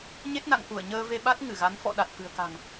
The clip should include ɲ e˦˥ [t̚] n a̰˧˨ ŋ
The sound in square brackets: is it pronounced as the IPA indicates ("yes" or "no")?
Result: yes